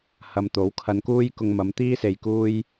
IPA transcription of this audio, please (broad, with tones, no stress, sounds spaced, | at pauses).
h ɐ˨˧ m t̪ o˨˥ w kʰ ɐ˧ n k uː˥ j k ʊ˧ ŋ m ɐ˨˧ m t̪ iː˥ s e˨ j k uː˧ j